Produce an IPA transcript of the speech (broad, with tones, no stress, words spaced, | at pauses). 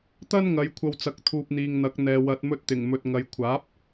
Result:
t̪ɐ˥nŋɐ˨˧jkʷʰɐ˧w t͡sɐ˧k̚t̪ʰuː˧p̚ n̪iː˨ŋn̪ɐ˨˥k̚n̪ɛː˨ wɐ˨t̚mɵ˧t̚t̪ɪ˨˩ŋmɵ˨t̚ ŋɐ˨˧jkʷʰaː˨˥p̚